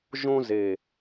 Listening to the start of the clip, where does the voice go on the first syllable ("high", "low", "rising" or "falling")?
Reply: high